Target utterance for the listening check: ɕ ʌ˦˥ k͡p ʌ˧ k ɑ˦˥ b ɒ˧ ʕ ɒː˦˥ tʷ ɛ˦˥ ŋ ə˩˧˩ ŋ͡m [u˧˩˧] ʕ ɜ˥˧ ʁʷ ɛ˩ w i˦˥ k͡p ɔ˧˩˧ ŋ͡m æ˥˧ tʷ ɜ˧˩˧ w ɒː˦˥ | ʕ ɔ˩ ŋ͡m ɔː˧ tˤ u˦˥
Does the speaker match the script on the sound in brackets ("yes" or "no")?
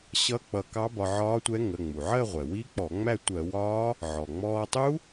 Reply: no